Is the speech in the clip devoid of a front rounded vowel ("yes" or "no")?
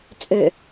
no